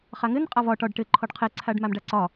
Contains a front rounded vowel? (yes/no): no